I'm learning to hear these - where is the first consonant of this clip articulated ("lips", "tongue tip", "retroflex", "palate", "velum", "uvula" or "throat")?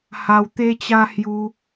throat